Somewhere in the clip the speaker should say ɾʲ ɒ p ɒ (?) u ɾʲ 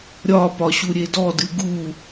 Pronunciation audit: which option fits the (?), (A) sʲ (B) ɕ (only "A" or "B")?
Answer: B